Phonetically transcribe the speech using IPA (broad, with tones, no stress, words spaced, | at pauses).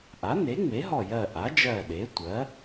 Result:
ʔa˩˥ ne˩˥ŋ͡me˩˥ɦɔ˧˩jɜ˧˩ ʔa˩˥d͡ʒɜ˧˩ɗe˩˥tʷɜ˩˥